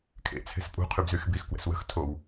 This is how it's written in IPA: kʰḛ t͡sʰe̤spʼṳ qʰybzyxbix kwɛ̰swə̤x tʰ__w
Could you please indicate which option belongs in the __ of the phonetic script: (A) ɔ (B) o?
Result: B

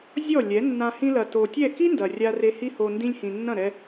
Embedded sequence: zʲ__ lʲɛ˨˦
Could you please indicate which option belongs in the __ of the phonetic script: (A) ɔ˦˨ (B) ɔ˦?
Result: A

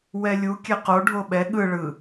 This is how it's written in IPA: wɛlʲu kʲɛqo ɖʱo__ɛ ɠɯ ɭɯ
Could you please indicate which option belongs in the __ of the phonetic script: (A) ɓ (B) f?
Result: A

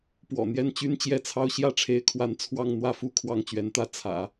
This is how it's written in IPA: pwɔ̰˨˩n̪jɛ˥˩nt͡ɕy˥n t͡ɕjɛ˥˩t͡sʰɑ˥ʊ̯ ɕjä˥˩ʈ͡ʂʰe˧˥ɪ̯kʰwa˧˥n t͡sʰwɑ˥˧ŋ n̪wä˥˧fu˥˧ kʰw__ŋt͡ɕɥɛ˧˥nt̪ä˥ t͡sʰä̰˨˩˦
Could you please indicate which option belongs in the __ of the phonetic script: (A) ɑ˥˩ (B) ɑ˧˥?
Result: A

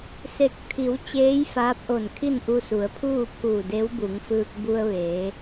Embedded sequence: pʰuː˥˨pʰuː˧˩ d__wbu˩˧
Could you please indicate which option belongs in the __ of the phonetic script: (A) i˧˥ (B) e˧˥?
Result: B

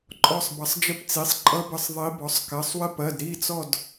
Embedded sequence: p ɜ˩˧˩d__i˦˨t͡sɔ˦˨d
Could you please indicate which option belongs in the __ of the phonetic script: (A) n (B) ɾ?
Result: B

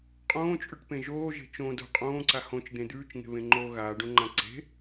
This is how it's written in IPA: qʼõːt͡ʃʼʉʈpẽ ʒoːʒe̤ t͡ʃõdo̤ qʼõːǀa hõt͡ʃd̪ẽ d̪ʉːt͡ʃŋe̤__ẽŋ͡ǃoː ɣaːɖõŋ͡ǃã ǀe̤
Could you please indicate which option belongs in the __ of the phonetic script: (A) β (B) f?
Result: A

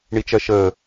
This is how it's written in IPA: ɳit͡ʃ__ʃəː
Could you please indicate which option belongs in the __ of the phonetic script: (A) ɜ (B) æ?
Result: A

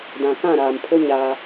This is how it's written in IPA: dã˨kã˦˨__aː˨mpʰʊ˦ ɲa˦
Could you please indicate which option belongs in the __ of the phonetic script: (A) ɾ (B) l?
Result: A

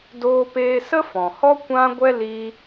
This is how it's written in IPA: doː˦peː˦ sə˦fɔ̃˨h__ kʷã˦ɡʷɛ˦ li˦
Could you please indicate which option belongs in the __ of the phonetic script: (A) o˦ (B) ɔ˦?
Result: B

